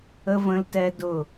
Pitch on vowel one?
high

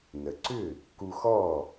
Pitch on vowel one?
low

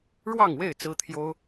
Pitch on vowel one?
falling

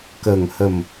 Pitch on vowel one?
low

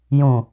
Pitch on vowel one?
low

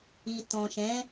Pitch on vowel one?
low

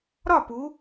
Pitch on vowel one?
falling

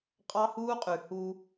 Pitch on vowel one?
high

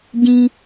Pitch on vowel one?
high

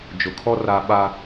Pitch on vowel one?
low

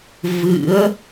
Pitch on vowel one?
rising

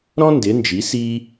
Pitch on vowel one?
high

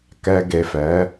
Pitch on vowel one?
low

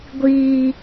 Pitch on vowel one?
low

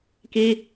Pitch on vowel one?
high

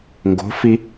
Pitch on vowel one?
rising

